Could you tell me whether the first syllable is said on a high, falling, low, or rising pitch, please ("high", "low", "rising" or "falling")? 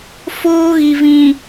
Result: high